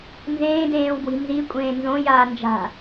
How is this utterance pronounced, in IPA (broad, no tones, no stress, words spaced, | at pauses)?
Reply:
nzẽː dẽːwɡwi̤ nzikʷʼẽː nzõjaː nd͡ʒa̤